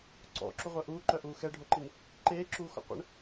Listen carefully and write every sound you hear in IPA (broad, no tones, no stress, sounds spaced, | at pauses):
ǀ ɔ̰ ǁ u ʁʷ œ ʔ uː ǃ œ ʔ uː x ɛ ɖʱ o ǃ i n | ǃ eː ǁ uː x ɔ̰ qʷ ə̰ ɳ